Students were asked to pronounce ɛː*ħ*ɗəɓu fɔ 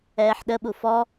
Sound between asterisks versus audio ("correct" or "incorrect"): correct